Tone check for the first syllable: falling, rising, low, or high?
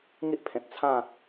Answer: high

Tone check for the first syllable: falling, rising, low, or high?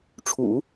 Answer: low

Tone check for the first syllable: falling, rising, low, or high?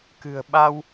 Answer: low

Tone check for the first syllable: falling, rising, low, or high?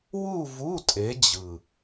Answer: falling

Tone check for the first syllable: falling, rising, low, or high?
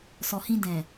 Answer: low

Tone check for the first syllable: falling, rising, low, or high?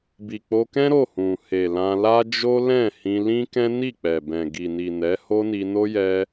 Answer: low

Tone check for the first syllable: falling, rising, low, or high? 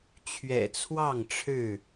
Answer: low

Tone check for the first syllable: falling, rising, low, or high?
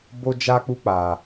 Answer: high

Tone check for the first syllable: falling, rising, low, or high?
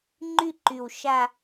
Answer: falling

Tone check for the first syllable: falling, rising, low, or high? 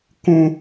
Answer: high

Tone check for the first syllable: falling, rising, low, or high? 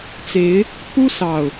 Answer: rising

